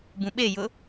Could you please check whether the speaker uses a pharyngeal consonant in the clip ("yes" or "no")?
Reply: no